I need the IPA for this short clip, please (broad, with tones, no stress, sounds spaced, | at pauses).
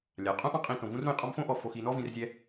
lʲ a˩ qʼ ũ˦ ʔ ɔ̃˦ qʼ ĩ˨ t õ˩ v ũ˦ r ɾ ũ˨ j qʼ ɔ˦ m f õ˥ ʔ ɔ˨ f o˨ x i˨ n ɔ˦ v ĩ˨ r zʲ ɛ˦